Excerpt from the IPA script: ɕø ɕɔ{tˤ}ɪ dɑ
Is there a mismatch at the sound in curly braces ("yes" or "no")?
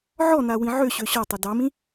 no